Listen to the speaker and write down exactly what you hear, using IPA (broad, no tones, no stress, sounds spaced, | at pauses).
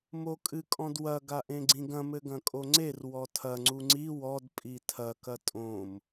m o kʼ ɨ kʼ ɔ̃ d w ɐ ɡ a ʔ ẽ ɡ͡ǀ ĩ ɡ ɐ̃ m ɘ ɡ ɐ̃ kʼ o ŋ͡ǀ e r w ɔ tʰ ɐ ŋ͡ǀ u ŋ͡ǀ i w ɔ d pʼ i tʰ ɐ k ɐ tʼ õ m